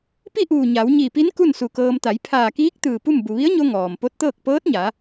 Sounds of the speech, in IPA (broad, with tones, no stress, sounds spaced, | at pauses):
p i˥˨ ʔ uː˧˩ ɲ a˩˧ w ɲ i˧˩ p i˧˥ n k u˥˨ n s u˧˩ k ɤː˧ m t̪ a˩˧ j pʰ aː˧˩ k iː˧˥ k̚ t̪ ɯː˧˩ p u˥˨ m b u˩ ʋ i˧˥ ə̯ ɲ o˧ ŋ ɔː˩ m p o˧˥ t̚ t̪ ɤː˥˨ k̚ p ɤː˧˥ t̚ ɲ a˩˧